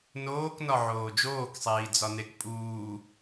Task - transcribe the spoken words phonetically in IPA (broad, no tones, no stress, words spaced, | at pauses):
noːknɒ ʕoːd͡ʒoːksˤiː d͡zɒnekpʼuː